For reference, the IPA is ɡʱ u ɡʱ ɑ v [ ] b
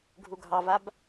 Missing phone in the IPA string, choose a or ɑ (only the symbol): a